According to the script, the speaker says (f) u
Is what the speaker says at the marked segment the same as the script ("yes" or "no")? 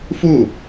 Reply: yes